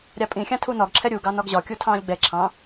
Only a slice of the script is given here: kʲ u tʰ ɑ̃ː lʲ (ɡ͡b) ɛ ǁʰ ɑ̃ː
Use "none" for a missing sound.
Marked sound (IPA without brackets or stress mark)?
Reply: ɡ͡b